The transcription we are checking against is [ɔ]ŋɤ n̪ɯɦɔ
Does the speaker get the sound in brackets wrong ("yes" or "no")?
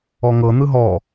no